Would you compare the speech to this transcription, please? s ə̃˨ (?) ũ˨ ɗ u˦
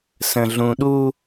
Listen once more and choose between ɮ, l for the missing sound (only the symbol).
ɮ